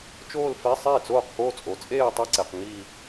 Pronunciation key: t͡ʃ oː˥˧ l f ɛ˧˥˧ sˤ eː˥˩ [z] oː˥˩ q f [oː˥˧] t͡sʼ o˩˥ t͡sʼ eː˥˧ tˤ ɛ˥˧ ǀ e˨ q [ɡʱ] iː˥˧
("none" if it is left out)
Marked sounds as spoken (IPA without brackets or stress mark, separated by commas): t͡s, oː˥˧, ŋ